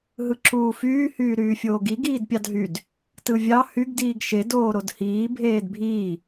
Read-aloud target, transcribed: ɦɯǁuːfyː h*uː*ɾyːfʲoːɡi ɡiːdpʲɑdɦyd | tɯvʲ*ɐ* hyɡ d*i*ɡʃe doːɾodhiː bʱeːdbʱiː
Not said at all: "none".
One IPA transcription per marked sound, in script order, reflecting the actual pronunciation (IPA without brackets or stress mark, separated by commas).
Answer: yː, ɑ, iː